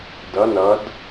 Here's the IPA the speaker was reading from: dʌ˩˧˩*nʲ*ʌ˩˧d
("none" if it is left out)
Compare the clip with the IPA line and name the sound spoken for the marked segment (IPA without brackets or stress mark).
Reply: n